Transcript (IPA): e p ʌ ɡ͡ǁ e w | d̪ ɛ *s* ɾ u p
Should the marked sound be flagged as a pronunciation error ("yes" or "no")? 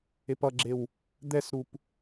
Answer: no